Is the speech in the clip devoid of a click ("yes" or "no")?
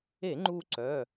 no